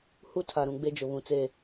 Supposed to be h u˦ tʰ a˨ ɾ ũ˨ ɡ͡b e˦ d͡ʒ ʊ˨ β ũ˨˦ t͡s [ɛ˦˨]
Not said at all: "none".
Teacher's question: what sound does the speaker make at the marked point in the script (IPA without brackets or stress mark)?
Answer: e˦˨